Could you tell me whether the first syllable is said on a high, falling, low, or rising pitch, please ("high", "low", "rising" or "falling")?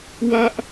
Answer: high